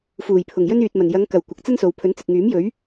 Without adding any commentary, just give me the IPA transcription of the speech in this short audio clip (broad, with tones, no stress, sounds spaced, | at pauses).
f uː˨˩ j pʰ ʊ˨˩ ŋ j ɵ˥ n yː˨ t̚ m ɐ˨˩ n j ɐ˨˧ ŋ k ɐ˨˩ w kʷ ɐ˨ k̚ t͡s ɐ˥ n s o˨ w pʰ ɵ˨˥ n t͡s ɪ˨ k̚ ŋ yː˨˥ m j ɵ˨˥ ɥ